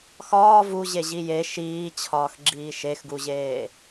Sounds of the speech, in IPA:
xɒː vuʑeʑi je ʃiːt͡ɕʰɒːxɡ͡ǁiː ʃexɡuʑeː

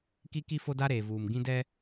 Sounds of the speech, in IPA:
ki˦ki˦ fo˦da˦ɾeː˨ vuː˨m ɡĩ˦dɛ˦

